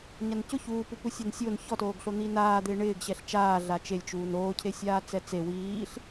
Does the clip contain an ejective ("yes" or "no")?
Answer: no